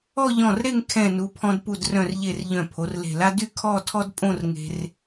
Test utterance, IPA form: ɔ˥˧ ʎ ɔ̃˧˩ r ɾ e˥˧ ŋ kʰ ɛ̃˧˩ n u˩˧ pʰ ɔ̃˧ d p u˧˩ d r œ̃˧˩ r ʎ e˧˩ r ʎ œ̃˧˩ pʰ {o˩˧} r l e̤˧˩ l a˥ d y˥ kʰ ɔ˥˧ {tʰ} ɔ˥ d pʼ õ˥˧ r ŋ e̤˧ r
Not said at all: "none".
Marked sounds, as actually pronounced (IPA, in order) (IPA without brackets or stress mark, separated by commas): o˩˧, tʰ